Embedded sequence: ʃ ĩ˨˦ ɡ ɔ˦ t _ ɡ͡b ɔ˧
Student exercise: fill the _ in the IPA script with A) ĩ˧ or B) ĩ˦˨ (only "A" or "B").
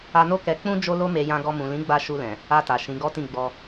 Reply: B